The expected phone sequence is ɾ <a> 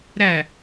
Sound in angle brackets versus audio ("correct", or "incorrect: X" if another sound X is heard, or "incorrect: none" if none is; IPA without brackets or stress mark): incorrect: æ